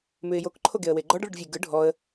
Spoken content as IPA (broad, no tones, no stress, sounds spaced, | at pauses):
m ʉ ɪ̯ j o k ǃʰ o ɡ e ə̯ w e ɡ͡ǃ ɔ ɖ ɭ ɯ ɖ vʲ e ɡ ɯ ɖʱ ɔ ə̯